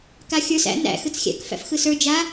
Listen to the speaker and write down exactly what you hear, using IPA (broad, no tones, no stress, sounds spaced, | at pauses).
k a xʲ ə˞ s æ̰ n æ̰ x ɯ t͡s xʲ æ̰ k f æ̰ f x ɯ s ə˞ d͡ʒ a